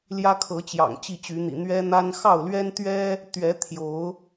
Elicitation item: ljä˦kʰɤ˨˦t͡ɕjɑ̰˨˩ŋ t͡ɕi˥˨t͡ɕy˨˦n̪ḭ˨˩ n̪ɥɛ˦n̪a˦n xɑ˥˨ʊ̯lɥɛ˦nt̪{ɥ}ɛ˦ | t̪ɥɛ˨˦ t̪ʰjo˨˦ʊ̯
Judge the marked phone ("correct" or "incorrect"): correct